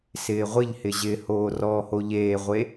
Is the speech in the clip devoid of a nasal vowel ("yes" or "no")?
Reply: yes